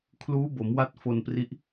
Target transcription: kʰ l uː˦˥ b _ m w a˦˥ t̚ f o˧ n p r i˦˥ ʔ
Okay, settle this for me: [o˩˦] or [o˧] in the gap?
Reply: o˩˦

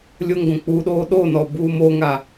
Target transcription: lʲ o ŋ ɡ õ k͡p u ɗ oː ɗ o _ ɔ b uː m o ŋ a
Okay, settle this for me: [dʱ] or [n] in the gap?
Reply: n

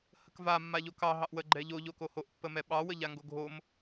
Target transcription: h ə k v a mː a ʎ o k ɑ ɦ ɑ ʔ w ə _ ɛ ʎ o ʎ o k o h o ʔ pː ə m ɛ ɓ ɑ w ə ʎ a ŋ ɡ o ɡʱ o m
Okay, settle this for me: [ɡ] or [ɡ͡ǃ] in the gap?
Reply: ɡ͡ǃ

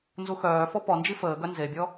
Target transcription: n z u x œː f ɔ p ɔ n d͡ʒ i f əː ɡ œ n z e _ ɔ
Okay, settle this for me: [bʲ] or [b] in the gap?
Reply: bʲ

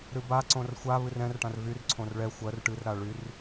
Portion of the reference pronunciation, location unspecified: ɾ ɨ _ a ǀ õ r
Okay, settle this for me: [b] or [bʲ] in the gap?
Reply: b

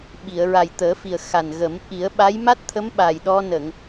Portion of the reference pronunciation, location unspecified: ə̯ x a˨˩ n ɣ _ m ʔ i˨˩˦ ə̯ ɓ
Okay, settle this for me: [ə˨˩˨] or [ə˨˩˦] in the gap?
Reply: ə˨˩˦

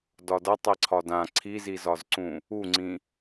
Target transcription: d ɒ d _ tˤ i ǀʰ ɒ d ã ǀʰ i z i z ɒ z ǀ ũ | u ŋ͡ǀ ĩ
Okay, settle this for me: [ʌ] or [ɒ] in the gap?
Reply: ʌ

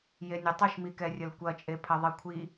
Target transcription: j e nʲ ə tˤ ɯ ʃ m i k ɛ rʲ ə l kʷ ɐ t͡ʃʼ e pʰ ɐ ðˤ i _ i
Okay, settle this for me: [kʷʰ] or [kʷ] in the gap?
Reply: kʷʰ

